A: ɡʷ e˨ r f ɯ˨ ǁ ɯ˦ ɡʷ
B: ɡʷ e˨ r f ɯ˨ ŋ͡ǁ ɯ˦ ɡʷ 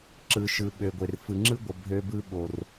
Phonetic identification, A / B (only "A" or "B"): B